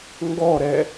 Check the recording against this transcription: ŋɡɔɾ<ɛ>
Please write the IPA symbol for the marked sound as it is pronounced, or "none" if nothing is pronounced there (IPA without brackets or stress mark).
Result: ɛ